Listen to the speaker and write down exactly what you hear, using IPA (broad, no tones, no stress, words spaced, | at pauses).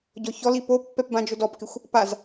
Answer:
ɟɔçɔli popːɛp bãd͡ʒʊdɔpkɪxʷ | paz